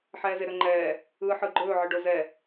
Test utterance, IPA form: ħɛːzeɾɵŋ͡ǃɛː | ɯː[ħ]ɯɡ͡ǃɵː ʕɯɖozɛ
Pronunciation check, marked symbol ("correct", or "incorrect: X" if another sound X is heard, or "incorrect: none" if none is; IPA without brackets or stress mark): correct